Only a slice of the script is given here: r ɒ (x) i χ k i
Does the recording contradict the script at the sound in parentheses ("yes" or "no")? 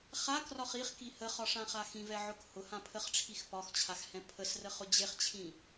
yes